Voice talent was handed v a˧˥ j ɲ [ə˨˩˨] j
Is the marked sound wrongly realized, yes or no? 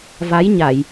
yes